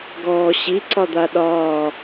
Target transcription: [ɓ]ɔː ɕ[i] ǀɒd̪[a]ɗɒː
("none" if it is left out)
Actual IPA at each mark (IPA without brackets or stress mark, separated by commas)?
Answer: ɡ, i, a